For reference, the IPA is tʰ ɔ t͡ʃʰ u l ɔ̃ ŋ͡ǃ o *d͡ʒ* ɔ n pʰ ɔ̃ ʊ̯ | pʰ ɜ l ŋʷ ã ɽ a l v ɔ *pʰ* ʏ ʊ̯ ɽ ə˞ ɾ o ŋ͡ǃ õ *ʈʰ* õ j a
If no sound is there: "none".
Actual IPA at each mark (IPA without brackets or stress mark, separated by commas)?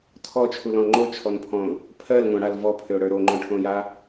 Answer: t͡ʃʰ, pʰ, ʈʰ